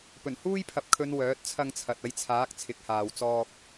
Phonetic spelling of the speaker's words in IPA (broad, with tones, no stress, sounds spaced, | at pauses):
p ɵ˨˩ n h uː˥ j pʰ ɐ˨ p̚ kʰ ɵ˨˧ n w œː˨˥ t̚ t͡sʰ ɐ˧ ŋ t͡sʰ ɐ˨ t̚ ɐ˧ j t͡sʰ aː˨˥ k̚ t͡sʰ ɪ˨˥ k̚ h aː˨ w t͡s ɔː˧ k̚